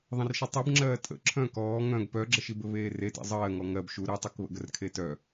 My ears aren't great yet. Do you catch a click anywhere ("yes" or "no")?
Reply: yes